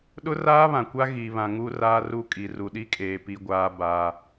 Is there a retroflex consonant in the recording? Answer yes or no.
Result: no